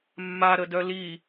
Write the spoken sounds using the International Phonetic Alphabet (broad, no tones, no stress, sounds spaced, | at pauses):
mː a ɾ ə d œ l i